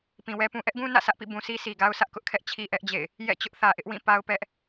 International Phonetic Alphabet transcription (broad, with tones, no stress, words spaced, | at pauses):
pĩ˨wɛ˦pũ˦ ʔɛ˦ʔɡũ˦ nä̰˦˨sä˦ʔpḭ˦˨ bũ˨si˦si˨ɡa˦ʊ̯ sʰä˦ʔkʊ˦ʔkʰɛ˦ʔ t͡ɕʰi˦ʔɛ˦ʔd͡ʑḛ˦˨ɪ̯ | jɛ̰˦˨t͡ɕʊ˦ʔ θä˨ʔɪ˦ʔwĩ˦˨ pa˦ʊ̯pɛ˦ʔ